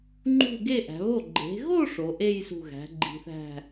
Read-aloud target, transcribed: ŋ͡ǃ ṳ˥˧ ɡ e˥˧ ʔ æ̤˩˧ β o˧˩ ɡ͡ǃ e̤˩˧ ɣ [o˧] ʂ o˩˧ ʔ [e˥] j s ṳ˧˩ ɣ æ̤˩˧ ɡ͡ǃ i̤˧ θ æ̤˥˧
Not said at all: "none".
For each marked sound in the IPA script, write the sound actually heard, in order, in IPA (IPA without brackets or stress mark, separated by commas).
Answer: o˥˧, e˥˧